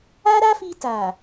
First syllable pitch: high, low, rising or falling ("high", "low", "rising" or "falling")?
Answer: high